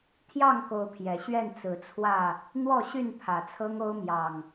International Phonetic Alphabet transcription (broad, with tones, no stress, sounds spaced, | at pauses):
t̪ʰ j ɑ˥˨ ŋ k o˨˦ ʊ̯ pʰ j ɛ˨˩ ɕ ɥ ɛ˥˨ n t͡s ɹ̩˨˦ t͡sʰ w ä˥˨ | n̪ w ɔ˥˨ ɕ y˥˨ n pʰ ä˨˩ t͡sʰ ɤ˦ ŋ o˦ ʊ̯ m j ɑ˨˩ ŋ